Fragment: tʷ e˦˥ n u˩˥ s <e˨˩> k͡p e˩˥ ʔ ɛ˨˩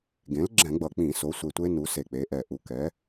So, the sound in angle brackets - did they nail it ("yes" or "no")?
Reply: yes